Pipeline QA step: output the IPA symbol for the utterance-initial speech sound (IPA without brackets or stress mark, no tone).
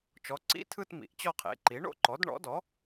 t͡ʃ